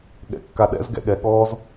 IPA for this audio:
ɠ ɛ̰ kː a ɗ ɛ̰ z ɡ ɛ̰ ɠ ɛ ɠ ɔː z

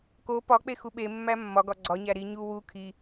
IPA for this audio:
k o p ɒ k͡p e x u ɓ e mː æ mː ɒ ɡ ɒ ɡ͡ǀ ɒ ɲ æ ɾ i ɲ u w u kʰ i

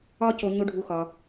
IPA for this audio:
ɒ˥ c o˧ ɲ o˥ ɖʱ u˧ x ɒ˩

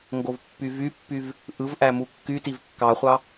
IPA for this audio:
ŋ ɡ o v pː y v y pː y v | ʔ ɯ v ʔ æ m u kː y t i v kː ɑ χʷ ɑ

